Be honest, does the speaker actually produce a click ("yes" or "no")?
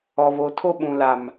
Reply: no